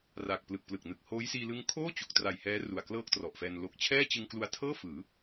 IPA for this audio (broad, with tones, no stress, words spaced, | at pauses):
ra˨˩k̚plɯ˨˩k̚plɯ˨˩k̚nɯ˨˩k̚ hoː˦˥jsiː˧lɯ˦˥ŋ kʰoː˥˩ t͡ɕu˨˩k̚tra˨˩jhɛː˦˥ ru˨˩a̯klɤː˥˩k̚trɔ˨˩ʔfɛː˧n lo˨˩k̚t͡ɕʰɛː˥˩t͡ɕɯ˧ŋ klu˧a̯tʰɤː˥˩fɯː˩˦